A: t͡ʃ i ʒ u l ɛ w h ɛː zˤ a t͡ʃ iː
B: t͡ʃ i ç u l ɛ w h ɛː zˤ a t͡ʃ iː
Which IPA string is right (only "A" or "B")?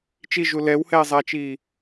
A